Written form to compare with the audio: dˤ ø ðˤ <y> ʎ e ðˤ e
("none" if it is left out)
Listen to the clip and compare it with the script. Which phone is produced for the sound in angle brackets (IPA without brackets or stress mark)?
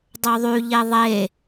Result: y